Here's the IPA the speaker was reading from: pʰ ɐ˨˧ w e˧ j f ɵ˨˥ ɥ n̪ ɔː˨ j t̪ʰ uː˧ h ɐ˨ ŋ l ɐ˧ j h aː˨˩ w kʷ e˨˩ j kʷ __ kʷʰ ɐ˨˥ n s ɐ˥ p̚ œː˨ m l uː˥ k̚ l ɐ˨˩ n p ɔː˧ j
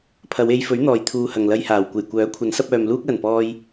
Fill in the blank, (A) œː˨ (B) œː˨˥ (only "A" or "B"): B